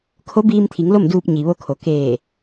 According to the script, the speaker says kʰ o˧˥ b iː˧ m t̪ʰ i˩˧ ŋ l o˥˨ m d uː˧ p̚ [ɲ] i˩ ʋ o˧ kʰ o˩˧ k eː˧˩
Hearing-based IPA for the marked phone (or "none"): ɲ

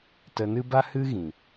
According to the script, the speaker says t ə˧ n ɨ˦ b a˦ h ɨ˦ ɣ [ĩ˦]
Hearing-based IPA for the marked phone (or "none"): ĩ˨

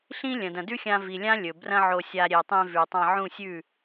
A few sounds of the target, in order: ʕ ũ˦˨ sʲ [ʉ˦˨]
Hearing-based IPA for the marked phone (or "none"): ʉ˦˨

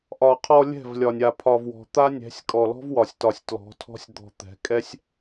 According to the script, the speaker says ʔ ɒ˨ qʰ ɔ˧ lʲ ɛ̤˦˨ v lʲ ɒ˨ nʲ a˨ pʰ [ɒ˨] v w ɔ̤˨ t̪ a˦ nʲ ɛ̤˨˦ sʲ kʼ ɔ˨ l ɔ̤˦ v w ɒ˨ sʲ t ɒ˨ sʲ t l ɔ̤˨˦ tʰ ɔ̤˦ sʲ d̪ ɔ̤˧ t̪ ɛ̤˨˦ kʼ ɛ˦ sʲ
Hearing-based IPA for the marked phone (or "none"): ɒ˨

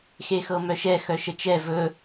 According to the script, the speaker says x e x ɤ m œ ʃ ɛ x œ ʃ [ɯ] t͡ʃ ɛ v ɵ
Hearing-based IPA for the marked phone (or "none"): ə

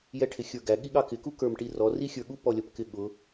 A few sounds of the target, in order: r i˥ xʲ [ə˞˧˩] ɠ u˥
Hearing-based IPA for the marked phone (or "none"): ə˞˧˩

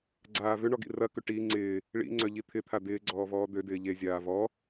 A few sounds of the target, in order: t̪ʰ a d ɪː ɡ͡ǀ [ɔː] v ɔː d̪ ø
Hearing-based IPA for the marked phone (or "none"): ɔː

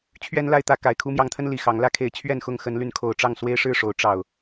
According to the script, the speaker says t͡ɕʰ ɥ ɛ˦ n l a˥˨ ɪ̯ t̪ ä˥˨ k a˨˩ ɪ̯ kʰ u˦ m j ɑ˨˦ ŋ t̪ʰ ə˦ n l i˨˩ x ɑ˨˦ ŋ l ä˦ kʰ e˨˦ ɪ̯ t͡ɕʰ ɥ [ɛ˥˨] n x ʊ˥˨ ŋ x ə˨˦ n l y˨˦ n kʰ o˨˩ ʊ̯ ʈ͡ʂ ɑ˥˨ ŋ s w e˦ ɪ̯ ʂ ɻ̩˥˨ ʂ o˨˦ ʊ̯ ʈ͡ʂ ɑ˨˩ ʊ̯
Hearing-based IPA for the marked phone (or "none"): ɛ˥˨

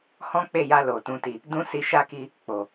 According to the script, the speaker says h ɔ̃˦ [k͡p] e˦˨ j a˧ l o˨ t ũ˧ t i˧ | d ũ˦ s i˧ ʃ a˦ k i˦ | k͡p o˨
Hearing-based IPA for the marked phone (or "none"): k͡p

